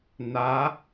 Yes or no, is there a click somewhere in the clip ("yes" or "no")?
no